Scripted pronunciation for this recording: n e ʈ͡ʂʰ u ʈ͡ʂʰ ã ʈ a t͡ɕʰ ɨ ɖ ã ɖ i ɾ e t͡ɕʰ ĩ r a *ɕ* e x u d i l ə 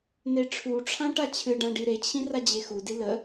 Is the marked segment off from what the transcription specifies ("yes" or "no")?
yes